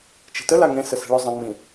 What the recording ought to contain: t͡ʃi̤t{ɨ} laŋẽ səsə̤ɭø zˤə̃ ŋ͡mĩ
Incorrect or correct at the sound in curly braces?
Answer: incorrect: ə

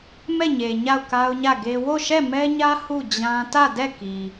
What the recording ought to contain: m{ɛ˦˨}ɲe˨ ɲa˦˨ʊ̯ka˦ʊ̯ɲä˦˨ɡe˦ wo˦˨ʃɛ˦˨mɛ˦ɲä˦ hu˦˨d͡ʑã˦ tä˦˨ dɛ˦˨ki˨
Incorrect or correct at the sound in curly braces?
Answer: correct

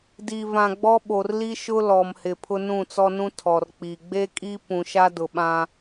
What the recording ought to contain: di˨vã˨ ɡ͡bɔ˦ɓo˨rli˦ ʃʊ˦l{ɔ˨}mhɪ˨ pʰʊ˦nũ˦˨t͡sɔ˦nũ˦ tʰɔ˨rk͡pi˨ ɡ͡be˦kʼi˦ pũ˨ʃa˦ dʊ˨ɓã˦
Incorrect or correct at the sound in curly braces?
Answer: correct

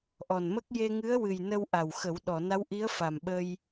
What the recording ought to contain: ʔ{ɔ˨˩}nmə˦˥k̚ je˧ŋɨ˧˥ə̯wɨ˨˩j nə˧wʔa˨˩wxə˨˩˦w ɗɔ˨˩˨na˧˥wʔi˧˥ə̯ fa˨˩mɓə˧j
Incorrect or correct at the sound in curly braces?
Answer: correct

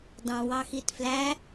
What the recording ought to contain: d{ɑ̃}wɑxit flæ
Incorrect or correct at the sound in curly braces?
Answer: correct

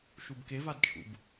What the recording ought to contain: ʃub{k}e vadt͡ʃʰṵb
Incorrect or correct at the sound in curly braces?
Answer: correct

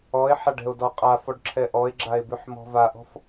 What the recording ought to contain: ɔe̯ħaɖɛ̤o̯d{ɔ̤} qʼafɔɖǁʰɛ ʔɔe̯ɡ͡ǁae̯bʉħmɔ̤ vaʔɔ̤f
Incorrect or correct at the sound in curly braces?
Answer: incorrect: ɔ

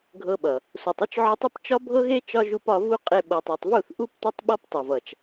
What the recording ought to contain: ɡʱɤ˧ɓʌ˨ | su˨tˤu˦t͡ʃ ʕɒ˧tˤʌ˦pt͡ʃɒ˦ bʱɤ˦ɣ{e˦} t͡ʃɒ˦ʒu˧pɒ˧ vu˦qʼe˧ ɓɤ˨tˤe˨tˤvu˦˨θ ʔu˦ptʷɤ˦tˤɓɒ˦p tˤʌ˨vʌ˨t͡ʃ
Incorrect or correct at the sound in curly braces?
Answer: correct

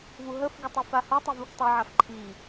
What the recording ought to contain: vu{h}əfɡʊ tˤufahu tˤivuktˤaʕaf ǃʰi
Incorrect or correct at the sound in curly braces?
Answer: incorrect: ɦ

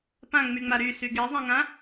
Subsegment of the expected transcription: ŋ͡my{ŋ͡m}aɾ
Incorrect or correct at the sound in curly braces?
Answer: correct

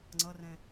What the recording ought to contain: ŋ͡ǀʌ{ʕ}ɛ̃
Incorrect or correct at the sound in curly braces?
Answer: incorrect: r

